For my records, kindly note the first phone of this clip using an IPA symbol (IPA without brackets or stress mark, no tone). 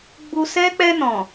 ɡ͡b